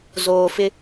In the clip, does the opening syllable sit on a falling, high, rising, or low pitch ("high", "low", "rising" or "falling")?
low